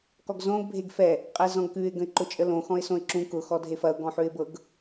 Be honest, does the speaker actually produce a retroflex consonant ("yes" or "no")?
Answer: no